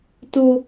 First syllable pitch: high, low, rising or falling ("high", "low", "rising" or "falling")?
high